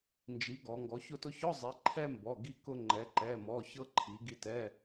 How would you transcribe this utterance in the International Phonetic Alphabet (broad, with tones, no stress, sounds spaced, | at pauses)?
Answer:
n d͡ʒ i˩˧ ɡ ɔ˩˧ ŋ ɡ ɔ˩˧ ç ʊ˧ t ʊ˧ ç ɔ˧˥˧ zˤ i˩˧ ǃʰ ɛ˧ m b ɔ˩˧˩ ɡ i˧ k ʊ˧ ŋ͡ǃ ɛ˩˧ ǃ ɛ˩˧˩ m ɔ˩˧˩ ç ɤ˧ ǃʰ i˩˧ ɡ i˧ t ɛ˧˥˧